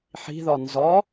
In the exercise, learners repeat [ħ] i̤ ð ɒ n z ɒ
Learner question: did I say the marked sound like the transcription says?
yes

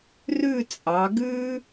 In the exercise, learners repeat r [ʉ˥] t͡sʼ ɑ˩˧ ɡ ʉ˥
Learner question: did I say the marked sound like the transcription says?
no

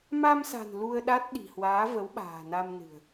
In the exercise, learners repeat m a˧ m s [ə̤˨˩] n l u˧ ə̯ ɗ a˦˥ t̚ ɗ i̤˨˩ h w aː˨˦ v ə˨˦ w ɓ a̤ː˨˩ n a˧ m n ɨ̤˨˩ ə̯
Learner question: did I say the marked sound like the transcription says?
no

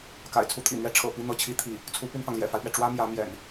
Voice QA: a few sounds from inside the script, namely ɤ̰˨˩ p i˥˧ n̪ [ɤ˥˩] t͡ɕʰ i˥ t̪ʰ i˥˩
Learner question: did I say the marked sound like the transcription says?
yes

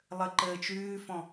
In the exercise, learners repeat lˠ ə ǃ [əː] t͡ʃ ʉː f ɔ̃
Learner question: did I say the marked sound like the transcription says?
yes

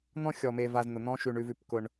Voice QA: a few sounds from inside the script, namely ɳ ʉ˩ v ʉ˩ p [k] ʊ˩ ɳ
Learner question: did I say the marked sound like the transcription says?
yes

